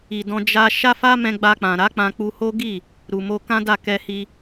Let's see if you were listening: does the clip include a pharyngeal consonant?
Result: no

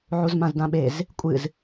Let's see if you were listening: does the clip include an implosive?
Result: yes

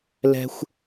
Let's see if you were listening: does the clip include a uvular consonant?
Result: no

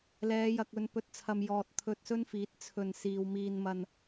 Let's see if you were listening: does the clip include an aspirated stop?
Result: yes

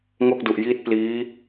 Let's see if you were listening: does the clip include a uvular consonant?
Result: no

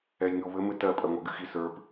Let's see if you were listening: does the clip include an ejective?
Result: yes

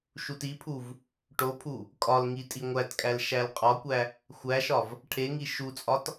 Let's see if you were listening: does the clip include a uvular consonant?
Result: yes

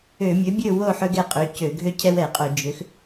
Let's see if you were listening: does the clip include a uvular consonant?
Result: yes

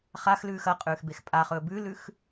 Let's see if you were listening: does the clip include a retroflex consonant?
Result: no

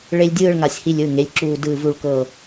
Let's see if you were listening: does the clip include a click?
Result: yes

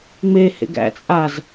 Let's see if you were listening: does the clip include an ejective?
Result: yes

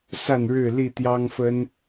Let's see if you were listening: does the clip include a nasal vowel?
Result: no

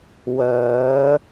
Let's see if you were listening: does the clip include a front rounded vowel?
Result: yes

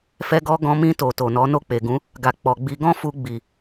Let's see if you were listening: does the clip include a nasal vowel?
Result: yes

